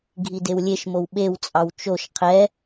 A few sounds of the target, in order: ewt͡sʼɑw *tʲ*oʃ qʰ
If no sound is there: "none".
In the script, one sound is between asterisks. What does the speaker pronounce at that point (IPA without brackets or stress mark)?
t͡ʃ